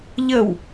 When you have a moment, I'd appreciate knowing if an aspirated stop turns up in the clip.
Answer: no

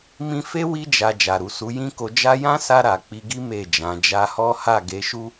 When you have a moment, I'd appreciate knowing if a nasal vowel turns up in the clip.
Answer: yes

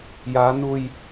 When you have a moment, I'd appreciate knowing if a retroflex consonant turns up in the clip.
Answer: no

